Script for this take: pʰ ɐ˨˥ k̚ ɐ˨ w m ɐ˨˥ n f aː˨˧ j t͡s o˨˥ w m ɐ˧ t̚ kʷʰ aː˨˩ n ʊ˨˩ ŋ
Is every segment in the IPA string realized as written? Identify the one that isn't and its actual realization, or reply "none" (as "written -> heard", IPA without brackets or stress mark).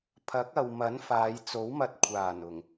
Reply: none